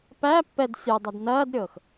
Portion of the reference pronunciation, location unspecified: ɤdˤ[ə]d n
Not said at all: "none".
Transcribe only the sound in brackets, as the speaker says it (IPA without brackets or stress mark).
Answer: æ